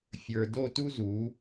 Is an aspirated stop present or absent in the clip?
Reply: absent